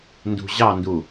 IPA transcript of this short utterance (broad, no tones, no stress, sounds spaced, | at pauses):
n d ṳ ʑ ɑ n d u